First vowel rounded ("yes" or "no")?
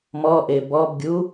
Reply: yes